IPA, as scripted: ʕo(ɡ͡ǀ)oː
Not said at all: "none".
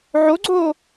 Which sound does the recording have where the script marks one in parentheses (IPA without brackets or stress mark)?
ɡ͡ǀ